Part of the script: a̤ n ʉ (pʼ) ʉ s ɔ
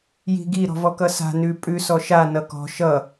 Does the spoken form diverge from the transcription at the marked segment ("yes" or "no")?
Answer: no